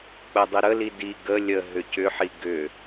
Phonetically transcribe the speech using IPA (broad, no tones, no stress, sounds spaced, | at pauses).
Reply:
k͡p ə dˤ i ɾ ə l i d i ɡ ə lʲ ə ɦ ʏ c ʏ ħ i ɡ ʏ